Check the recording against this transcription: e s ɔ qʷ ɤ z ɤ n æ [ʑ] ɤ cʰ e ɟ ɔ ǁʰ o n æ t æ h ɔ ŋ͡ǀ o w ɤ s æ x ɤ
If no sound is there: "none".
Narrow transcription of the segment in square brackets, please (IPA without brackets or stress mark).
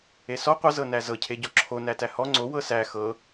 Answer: z